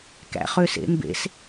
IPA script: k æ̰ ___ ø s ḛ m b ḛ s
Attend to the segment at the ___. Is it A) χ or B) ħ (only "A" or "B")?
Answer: A